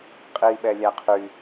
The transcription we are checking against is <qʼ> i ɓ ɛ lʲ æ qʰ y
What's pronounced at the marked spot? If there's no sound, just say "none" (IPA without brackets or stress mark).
qʼ